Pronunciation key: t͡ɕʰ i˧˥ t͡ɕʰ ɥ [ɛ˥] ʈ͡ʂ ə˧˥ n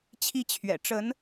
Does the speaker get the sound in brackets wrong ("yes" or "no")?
yes